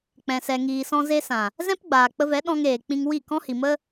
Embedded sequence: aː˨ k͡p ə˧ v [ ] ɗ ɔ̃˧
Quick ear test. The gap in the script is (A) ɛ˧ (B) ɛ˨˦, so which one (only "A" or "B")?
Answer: B